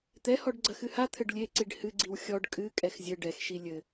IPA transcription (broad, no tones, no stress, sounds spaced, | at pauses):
t̪ ɛ h ɔ ɖ ɡ͡ǀ ɐ x ɨ h a t̪ʰ ɘ ɖ lʲ e ǀ i ɖ h ɨ ɡ͡ǀ i w xʲ ɔ ɖ kʼ ɨ kʼ ɛ x zʲ ɘ ɖ ɛ x ʃ i lʲ ɘ